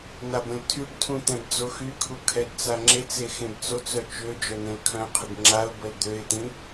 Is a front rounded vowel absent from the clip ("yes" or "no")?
no